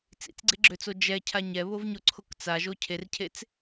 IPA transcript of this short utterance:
t͡sḭt͡sɡ͡ǀeɡ͡ǁøt͡so d͡ʒɛcʰa ɲɛβovɲoǀʰok t͡saʒo cʰercʰet͡s

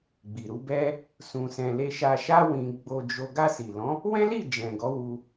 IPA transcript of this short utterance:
ɡ͡bi˨ɾu˨˦bɛ˦ | sũ˧sɛ̃˧ le˧ʃa˧ʃa˦ wĩ˧ ɡ͡bo˧d͡ʒo˧ ɡa˧si˨lɔ̃˨˦ | wɛ̃˦li˦˨ d͡ʒɛ̃˨ɡɔ˨˦wu˧

